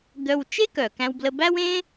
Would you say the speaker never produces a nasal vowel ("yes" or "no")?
no